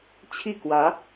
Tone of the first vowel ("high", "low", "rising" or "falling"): falling